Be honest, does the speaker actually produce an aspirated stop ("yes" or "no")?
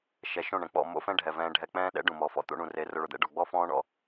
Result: no